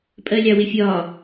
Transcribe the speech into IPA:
pʼɜlʲɑwɪfʲɒ

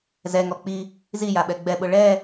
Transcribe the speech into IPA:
zɛŋɔ k͡pi | zijaɓɛ ɡ͡bɛɓʊ ɭɛ

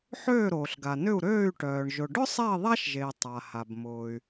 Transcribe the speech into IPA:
ħøː˦˨ɾoː˩ɬɡa˩nʏ˦˨u̯ ɾøː˦˨y̯ʈœː˩ɳ ʒʊ˩ɖʊ˥sˤɛ˦˨i̯ ðˤa˥ʃʒe˩i̯ tˤa˩ha˩b mʊː˩y̯

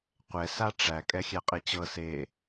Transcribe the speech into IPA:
qʷɛ saʈ͡ʂæ kʼɛxʲæqʼet͡ɕɤ se

